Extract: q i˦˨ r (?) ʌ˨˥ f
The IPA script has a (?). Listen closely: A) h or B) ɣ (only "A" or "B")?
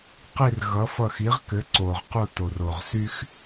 B